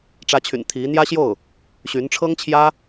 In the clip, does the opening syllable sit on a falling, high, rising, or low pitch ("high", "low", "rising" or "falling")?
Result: rising